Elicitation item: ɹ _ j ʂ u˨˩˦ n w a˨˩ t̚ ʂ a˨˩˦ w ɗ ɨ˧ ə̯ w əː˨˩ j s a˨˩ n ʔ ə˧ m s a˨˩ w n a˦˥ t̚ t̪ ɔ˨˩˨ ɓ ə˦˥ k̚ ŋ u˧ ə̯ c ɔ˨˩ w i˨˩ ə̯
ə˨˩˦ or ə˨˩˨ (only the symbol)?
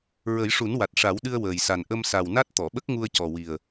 ə˨˩˦